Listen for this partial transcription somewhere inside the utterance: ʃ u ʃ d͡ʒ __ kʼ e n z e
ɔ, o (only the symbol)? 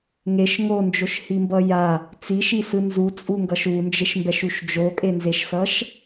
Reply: o